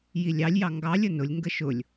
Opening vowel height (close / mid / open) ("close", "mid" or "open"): close